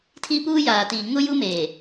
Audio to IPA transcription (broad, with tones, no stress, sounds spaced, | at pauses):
tʰ i˦ p uː˦ j aː˨ t iː˨ ŋ ʊ˦ j u˦ m eː˨